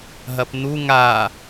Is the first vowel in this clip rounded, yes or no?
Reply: no